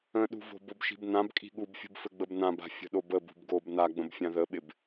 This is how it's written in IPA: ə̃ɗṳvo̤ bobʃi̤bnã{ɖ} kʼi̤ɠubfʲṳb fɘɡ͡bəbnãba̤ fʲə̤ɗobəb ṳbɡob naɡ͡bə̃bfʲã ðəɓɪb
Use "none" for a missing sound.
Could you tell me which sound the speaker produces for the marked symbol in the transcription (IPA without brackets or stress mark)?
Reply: b